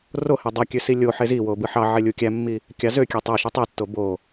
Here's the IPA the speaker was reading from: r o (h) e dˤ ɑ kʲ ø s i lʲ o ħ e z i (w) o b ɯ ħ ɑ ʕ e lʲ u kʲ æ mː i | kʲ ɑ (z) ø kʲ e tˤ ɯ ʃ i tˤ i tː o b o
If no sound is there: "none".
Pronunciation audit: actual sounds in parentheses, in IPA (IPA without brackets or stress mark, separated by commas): h, w, z